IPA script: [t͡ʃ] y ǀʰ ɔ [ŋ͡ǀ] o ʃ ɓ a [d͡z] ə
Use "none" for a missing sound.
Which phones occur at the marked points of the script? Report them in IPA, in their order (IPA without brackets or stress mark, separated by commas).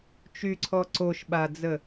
t͡ʃ, ǀ, d͡z